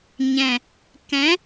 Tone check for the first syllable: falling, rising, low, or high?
low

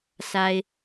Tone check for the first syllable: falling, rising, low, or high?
high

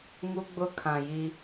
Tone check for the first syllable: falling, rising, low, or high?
high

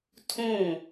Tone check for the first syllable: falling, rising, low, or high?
falling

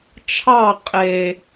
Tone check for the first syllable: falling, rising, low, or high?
falling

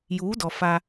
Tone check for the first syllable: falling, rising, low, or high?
rising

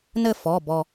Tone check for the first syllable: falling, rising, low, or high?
falling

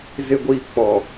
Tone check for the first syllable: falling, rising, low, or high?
low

